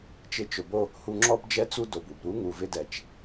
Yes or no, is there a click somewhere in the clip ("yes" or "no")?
yes